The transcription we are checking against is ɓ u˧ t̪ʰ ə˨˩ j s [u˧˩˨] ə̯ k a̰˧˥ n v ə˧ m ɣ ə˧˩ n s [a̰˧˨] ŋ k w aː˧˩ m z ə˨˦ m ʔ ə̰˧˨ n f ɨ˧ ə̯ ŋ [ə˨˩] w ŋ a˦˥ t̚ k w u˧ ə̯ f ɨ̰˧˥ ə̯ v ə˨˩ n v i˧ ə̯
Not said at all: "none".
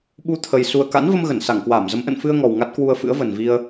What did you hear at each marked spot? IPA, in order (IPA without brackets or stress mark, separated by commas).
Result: u˨˩, a˧˩, ɔ˨˩